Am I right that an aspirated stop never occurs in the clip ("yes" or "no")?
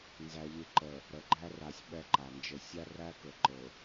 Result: yes